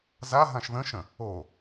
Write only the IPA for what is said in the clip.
z a ɦ ã ʃ ð ə̃ ʃ ə̃ | o

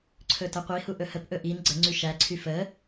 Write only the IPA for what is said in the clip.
ǀʰ ɵ t ə qʷ i h u ʔ ɵ h ə p ʔ ɵ ʔ i n ɡ͡ǀ ə ŋ͡ǀ y ʃ æ ǀʰ y f ə

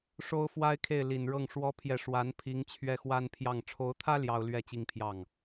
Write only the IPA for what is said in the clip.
ʂ o˥ ʊ̯ f w a˥ ɪ̯ kʰ e˥˩ ɪ̯ l i˨˩ n ɻ ɤ˥˩ ŋ ʂ w ɔ˥ pʰ j ɛ˥˩ ʂ w a˧˥ n pʰ i˧˥ ŋ t͡ɕʰ ɥ ɛ˥˩ x w a˥ n pʰ j ɑ˥˩ ŋ ʈ͡ʂʰ o˧˥ ʊ̯ t̪ʰ ä˥ l j ɑ˥ ʊ̯ l ɥ ɛ˥ t͡ɕ i˥˧ ŋ pʰ j ɑ˥˩ ŋ

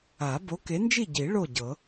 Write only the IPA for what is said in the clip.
a˨˩˦ b o˨˥ k e˨˥ n d͡ʒ i˥˨ ɟ i˨˩˦ ɭ o˥˨ ɟ ɤ˨˩˦

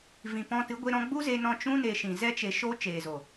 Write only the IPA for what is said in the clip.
v ĩ˨ p ɔ̃˧ t ɨ˨˦ ɡʷ e˦ ɾ ɔ̃˦ ɡ͡b u˦ z e˧ n ɔ̃˧ t͡ʃ ũ˦ n e˧ ʃ ĩ˨ z ɛ˦ t͡ʃ e˧ ʃ o˦ t͡ʃ eː˨ z o˨

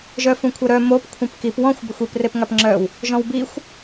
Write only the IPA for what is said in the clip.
ʒ œ f ũ kʷʰ œ ɾ œ m o p kʷʰ ẽ p k i p w ɔ̃ xʷ b ɘ xʷ i p r e p ŋ a p ŋ͡ǁ œ w | ʒ ɔ̃ w b i xʷ

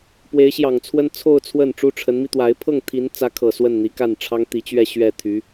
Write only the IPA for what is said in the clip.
p w e˧˥ ɪ̯ ɕ j ɑ˨˩ ŋ t͡sʰ w ə˥ n t͡sʰ o˥˧ ʊ̯ t͡sʰ w ə˥˩ n ʈ͡ʂ u˥ ʈ͡ʂʰ ə˧˥ n m i˧ t̪ w a˧˥ ɪ̯ pʰ ɤ˥˩ ŋ t̪ʰ i˧˥ n t͡s ä˧˥ kʰ ɤ˨˩ s w ə˥˩ n n̪ i˧˥ k a˥˩ n ʈ͡ʂʰ ɑ˥ ŋ t̪ i˧˥ t͡ɕ ɥ ɛ˥˧ ɕ ɥ ɛ˥˩ t̪ʰ y˧˥

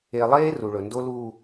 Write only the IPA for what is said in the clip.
e˨ lˠ eː˦ r u˨ ɭ ɵ˨ n d o˦ l uː˨

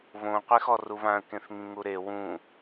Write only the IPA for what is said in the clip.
β õ qʷ e x ɔ r u β ã ə̯ k ẽ θ ŋ ĩ ŋ u ɾ e w ũ

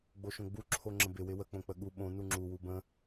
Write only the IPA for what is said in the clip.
ɡ͡b o ʃ õ ɡ͡b u ǁʰ o ŋ͡ǁ ə̃ b ɪ w ɪ w ə k͡p õ k͡p ə ɠ u ɓ õ n u ŋ͡ǁ u w u b ə̃

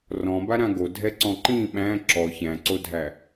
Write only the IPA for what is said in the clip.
r ɔ̃ b a ɾ ã ɡ o dʱ ɛ ǀ ɔ̃ ǃ ĩ ɓ æ̃ ǁ ɔ ç æ̃ ǀ o dʱ æ

